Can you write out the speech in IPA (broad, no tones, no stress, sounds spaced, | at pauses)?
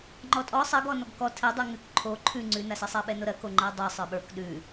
ŋ͡ǃ ɔ tʼ ɔ sˤ ɜ ɡ ɔ n ɔ ɡ k ɔ tʰ ɛ dˤ ʉ ŋ ʉ k ǃʰ o ǃʰ ʉ ŋ͡ǀ ʉ n a s ɛ sˤ a ɓ ɛ n o ɾ ɜ k o ŋ͡ǃ ɜ dˤ ə˞ sˤ ə˞ ɓ ə˞ k ɗ ʉ